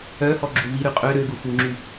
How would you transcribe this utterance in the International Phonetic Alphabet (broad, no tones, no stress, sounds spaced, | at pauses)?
œ h ɔ ɡ͡ǁ u v i ɾ y qʼ ø ɾ ø ɡ u f u ŋ͡ǁ y